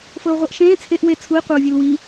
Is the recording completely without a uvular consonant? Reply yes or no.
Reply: no